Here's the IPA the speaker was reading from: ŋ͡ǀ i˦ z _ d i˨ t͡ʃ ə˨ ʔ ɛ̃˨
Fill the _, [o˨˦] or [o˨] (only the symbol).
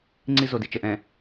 o˨